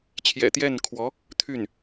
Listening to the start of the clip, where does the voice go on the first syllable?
low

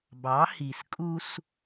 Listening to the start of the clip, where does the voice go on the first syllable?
rising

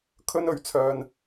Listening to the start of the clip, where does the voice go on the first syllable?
high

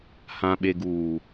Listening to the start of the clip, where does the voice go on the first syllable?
low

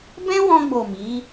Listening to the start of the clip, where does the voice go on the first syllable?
high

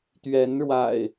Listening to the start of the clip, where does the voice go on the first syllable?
rising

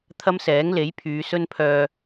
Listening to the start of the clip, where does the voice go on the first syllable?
high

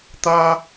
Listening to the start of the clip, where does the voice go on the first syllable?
high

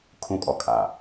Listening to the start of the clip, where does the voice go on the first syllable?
high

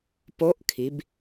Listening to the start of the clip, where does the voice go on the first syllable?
rising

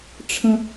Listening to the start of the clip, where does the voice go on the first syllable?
low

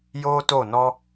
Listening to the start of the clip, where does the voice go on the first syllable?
high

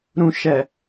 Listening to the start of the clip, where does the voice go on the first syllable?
low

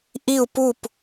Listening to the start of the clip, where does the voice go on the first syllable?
falling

